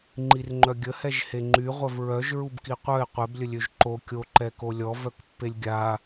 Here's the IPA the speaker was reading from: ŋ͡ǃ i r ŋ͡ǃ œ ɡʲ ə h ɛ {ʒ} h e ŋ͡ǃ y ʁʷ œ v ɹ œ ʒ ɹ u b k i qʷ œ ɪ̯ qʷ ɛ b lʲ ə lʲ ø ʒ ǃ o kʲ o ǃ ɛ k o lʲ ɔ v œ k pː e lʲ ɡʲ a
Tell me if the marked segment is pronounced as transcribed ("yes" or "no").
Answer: yes